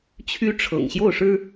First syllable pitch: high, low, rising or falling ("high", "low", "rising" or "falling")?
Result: rising